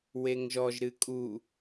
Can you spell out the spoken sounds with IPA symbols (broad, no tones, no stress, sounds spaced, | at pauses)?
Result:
w e ŋ ʒ ɔ ʒ ɾ ɨ kʼ u